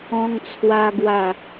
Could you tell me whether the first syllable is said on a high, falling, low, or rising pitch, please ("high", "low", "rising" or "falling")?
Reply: high